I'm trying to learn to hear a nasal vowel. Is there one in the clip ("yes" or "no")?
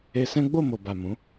yes